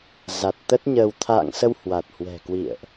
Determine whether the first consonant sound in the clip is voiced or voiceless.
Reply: voiced